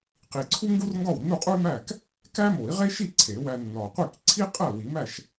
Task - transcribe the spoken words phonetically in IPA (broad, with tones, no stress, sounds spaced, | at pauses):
q i˨˩ ǀʰ u˥ ŋ ɡ u˥ r ŋ ɡ ɒ˥˩ w nː u˥˩ qʼ u˥ y̯ m æ˥˩ k | k æ˥ m o˨˩˦ i̯ ʁ e˥ ʃ i˥˩ ǀʰ e˨˩˦ w æ˧ nː ɒ˨˩ qʷ i˥˩ k ǀʰ i˥ qʼ æ˥˩ w i˨˩˦ m æ˥˩ ʃ